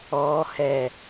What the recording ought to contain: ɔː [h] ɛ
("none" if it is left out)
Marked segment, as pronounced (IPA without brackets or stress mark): h